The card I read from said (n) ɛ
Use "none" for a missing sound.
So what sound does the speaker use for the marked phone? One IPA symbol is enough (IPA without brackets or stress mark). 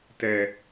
t